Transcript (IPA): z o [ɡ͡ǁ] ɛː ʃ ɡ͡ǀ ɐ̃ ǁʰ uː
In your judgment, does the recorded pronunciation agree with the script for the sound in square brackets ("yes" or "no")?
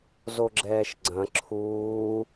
yes